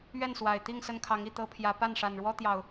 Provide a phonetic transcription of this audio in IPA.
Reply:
ɥ ɛ˥˨ n s w a˨˩ ɪ̯ t̪ i˥˨ ŋ s ə˦ n kʰ ɑ˨˦ ŋ i˥˨ t̪ ɤ˦ pʰ j ä˨˦ p a˥˨ n ʂ a˨˩ n ɻ w ɔ˦ t̪ j ɑ˨˩ ʊ̯

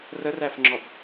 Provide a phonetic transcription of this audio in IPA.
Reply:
r ə r æ f ŋ͡ǁ ɔ b

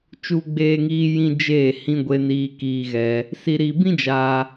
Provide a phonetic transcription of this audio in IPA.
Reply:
t͡ʃ u˧ ɡ͡b eː˧ ŋ iː˧ j ĩ˦ d͡ʒ eː˦˨ h ĩ˧ ɡʷ e˧ n iː˧ k iː˧ ɣ ɛ˧ | s i˧ ɾ i˧ b ĩ˦ d͡ʒ aː˧

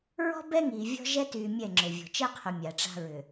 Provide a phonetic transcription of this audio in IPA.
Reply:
ɹ ɔ̤˦ b ɛ˦ ŋ iː˨ vʲ ɔ̤˦ ʒ ɛ˦ t yː˨ mʲ ɛ˦˨ ŋ͡ǁ ʏ˨ vʲ ɔ̤˨ t͡ʃ ɛ˦ qʰ ʏ˨ mʲ a˨ ʈ͡ʂ a̤˦ ɹ ʏ˨

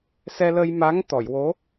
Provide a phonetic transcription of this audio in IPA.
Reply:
s ɛ˧ l ə˧ j m a˧˥ ŋ t̪ ɔ˨˩˨ j w o˧˥

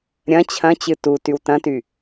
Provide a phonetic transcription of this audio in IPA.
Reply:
ɾʲ ɐ̃ t͡ɕʰ ɐ̃ t͡ɕ ɨ t u t y w t ɐ̃ t y

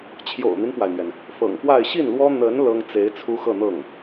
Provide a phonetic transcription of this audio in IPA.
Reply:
t͡ɕʰ j o̰˨˩ ʊ̯ n̪ i˦ n p w a˩ ɪ̯ n̪ ɥ ɛ˩ n | f ɤ̰˨˩ ŋ p w a˥˧ ɪ̯ ɕ i˥˩ n l w ɔ˥ n̪ ə˧˥ n l ɤ˥ ŋ t͡s e˧˥ ɪ̯ t͡sʰ u˥ x ɤ˥˧ n̪ ɤ˥˩ ŋ

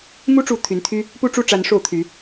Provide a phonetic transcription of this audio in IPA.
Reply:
m u˦ ʈ͡ʂ u˨˦ t̪ʰ y˨˦ n t̪ʰ y˦ | p u˥˨ ʈ͡ʂ u˥˨ ʈ͡ʂ a˨˦ n ʂ o˥˨ ʊ̯ t̪ʰ y˨˦

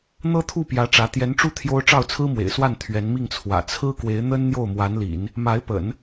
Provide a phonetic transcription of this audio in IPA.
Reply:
n̪ ɤ˥ t̪ʰ u˥˩ p j ä˧˥ ʈ͡ʂ ä˧˥ t̪ j ɛ˧˥ n ʈ͡ʂ u˥˩ t̪ʰ j o˥ ʊ̯ ʈ͡ʂ ɑ˥˩ ʊ̯ t͡sʰ ɹ̩˥ m w ḛ˨˩ ɪ̯ s w a˥˩ n t̪ʰ ɥ ɛ˧˥ n m i˥˩ ŋ t͡sʰ w ä̰˨˩ t͡sʰ ɹ̩˥ k w e˧˥ ɪ̯ n̪ ə˥ n n̪ j o˥˩ ʊ̯ m w a˧˥ n l ḭ˨˩˦ n | m a˧˥ ɪ̯ p ə̰˨˩˦ n

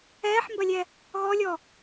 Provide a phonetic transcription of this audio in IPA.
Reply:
ɛː ħ m b ɐ lʲ ɛ | ɣ ɔ lʲ ɔ

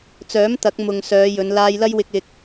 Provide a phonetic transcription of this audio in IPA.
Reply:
t͡s œː˨˥ m t̪ ɐ˨˥ k̚ m ʊ˨ ŋ s œː˨˧ j ɵ˨˧ n l aː˧ j l ɐ˥ j w ɪ˧ k̚ ɪ˧ k̚

